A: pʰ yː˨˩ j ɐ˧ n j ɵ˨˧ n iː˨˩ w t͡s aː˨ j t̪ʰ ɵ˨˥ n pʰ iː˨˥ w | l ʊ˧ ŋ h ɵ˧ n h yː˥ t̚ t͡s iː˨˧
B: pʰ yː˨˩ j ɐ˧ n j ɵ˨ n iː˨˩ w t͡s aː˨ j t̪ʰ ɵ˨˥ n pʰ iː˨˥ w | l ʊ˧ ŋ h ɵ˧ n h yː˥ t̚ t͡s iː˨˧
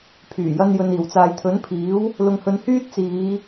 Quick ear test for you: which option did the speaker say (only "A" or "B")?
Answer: B